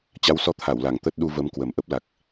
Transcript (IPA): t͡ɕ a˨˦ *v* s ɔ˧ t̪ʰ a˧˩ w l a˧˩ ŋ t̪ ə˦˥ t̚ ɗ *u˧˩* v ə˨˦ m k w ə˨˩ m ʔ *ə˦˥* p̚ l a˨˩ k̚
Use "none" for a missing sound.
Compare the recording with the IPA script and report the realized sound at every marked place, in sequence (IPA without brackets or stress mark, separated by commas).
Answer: w, u˧, ə˦˥